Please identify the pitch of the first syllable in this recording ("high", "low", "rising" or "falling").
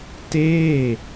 falling